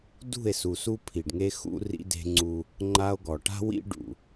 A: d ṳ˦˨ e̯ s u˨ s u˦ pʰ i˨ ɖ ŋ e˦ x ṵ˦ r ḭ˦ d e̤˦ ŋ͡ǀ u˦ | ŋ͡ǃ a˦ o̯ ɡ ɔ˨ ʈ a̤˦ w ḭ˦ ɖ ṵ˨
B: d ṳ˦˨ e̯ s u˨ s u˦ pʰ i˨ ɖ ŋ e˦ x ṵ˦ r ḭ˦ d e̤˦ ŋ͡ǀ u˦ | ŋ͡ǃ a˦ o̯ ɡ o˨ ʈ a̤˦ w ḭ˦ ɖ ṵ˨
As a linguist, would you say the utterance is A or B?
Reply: A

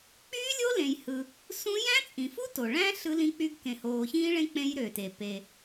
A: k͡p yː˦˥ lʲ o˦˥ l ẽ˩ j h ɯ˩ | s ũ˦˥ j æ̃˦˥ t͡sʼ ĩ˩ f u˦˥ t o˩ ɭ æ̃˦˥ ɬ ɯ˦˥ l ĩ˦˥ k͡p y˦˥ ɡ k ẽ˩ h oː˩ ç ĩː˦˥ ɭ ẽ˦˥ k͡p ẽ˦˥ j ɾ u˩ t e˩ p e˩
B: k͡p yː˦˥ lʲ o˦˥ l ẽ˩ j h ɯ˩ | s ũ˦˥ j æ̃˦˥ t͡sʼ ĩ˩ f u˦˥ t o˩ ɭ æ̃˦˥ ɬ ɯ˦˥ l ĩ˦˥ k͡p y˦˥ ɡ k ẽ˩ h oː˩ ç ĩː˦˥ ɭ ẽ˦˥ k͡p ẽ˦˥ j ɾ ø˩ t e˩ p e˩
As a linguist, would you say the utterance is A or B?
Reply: B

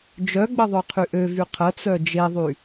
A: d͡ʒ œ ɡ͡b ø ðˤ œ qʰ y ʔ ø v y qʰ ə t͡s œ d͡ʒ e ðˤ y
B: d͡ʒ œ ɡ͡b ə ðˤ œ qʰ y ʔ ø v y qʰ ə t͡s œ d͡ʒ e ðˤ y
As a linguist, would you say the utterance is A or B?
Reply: B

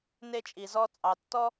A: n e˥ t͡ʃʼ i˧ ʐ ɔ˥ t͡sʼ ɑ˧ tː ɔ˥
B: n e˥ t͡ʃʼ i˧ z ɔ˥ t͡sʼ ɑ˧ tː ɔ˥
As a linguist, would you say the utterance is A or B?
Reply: B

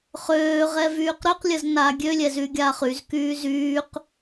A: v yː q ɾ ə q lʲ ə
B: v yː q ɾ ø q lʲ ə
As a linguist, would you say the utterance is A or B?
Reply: B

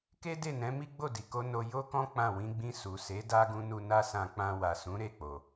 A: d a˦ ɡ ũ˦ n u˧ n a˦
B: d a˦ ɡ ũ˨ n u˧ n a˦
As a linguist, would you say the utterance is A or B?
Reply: A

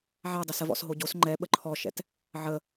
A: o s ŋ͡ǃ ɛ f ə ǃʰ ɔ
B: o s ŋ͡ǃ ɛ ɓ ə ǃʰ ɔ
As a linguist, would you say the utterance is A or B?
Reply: B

